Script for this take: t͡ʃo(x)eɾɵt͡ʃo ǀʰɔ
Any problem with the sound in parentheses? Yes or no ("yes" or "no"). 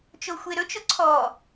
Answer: yes